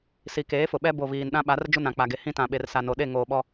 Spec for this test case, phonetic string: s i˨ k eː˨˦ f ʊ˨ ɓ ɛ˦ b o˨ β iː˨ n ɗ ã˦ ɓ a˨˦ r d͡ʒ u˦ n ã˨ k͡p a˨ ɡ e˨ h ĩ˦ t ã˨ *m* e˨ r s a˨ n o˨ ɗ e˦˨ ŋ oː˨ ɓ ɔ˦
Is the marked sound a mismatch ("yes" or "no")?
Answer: yes